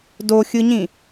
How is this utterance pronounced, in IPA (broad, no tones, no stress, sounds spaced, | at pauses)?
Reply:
d o xʲ ɯ ɲ ĩ